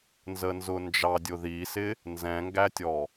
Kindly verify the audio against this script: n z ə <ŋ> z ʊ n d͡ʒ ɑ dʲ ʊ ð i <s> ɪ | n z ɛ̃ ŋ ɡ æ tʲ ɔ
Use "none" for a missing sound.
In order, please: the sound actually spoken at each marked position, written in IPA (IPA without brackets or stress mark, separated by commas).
n, s